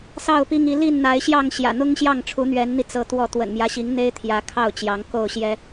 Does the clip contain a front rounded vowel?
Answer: no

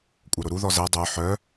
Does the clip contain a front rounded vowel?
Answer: yes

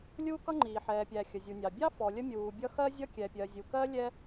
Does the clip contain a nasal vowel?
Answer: no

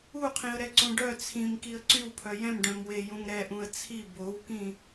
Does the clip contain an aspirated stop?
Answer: yes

